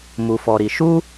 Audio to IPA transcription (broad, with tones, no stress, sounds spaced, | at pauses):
m u˧ f ɔ˧ ɾ i˧ ʃ u˦